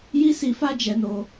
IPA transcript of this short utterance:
ji˦si˧fa˦ d͡ʒɛ˧no˧

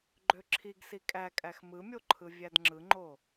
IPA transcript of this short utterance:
ɡ͡ǃøǁʰiɡ sikʼækʼæx mɯmʲoǃʰɯ vʲædŋ͡ǁɯŋ͡ǃo

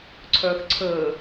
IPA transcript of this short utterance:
ǀʰœːxǀʰəː

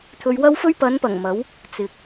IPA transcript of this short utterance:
t̪ʰɵ˧ɥwɐ˥wfɵ˥ɥ pɐ˨˧npɐ˨˩ŋ mɐ˨˥w | t͡sɪ˨k̚

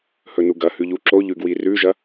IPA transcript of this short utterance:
hɵnuɡɐhʉ ʎuǁoʎʉ ɡwirʉʒɐ

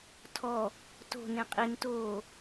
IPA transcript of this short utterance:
tʰɔ | to̤ nẽqʼintoː

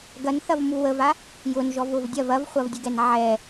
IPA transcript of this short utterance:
ɡɐnθɐvmu wəva | jʊnʒɔvʊv dʲɐv ɐvχʷɐvdʲʊɡɛn ʕɛ

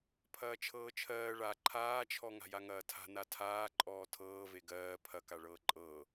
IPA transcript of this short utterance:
pʰɐːt͡ʃʰɤːt͡ʃʰɜː ɭa ǃʰaːt͡ʃʰɔ ŋa̤jaŋɐːtʰa̤ natʰaː ǃʼɔːtʰɤːve ɡɜː pʰɐka ɭɤːǃʼɤː

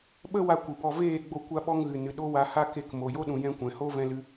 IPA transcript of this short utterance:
ɓə˦wa˧ kʷɨ˨bɔ˧ veː˦˨ɡ͡bo˧ kʷa˧ɓɔ˧ŋɣɨ˨ nɨ˨ ɗo˦wa˧ha˦ke˧k mo˨jo˦ɗũ˨jɛ̃˧ kʷɛ̃˨ ho˧ vɛ̃˧lɨ˧

